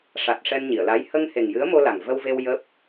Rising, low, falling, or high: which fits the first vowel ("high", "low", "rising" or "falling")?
low